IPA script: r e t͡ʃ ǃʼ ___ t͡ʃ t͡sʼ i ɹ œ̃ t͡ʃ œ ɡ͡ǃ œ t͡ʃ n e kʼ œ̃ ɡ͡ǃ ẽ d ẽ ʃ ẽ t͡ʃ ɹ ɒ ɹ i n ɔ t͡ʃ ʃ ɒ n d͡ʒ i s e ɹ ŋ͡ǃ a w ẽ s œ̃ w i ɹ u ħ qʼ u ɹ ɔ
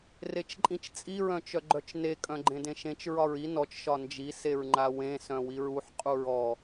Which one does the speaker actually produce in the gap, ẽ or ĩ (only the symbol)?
ĩ